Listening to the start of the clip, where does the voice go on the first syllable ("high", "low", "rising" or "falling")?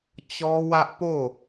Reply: high